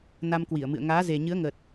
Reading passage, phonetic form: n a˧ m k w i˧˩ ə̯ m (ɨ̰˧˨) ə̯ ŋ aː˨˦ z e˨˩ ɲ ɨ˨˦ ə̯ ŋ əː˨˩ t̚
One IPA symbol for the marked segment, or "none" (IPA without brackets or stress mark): ɨ̰˧˨